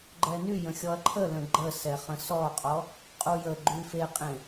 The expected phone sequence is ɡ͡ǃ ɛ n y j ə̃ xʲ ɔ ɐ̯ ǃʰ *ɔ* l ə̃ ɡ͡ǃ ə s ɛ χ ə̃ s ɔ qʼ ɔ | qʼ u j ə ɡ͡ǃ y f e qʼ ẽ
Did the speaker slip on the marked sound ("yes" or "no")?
yes